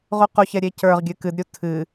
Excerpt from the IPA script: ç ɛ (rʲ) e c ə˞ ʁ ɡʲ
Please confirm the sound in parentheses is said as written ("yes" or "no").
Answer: no